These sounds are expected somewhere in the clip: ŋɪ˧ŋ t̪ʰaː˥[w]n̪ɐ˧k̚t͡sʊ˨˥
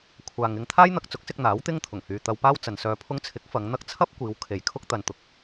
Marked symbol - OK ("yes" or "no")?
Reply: no